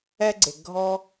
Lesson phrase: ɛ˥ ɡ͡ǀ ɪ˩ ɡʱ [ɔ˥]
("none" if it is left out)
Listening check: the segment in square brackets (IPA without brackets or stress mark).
ɔ˥